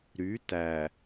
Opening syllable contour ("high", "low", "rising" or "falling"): rising